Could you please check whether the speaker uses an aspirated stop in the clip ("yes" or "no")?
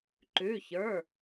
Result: no